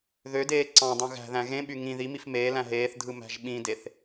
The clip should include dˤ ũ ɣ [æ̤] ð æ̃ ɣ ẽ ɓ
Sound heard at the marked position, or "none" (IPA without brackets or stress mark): æ̤